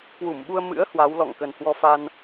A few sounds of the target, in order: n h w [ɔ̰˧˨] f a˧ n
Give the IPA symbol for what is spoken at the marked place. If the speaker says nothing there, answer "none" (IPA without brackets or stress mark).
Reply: ɔ˧